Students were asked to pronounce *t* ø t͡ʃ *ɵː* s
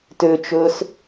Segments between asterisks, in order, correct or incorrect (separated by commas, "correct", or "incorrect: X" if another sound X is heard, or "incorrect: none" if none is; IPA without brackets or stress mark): correct, correct